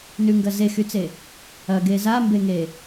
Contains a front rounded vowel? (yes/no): yes